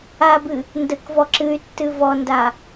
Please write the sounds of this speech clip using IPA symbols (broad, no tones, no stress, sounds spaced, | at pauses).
a b ɨ | n d ə k v ɔ ǁ ɨ y̯ tː ɨ v ɔ n d a